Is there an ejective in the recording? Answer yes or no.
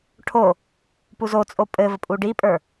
yes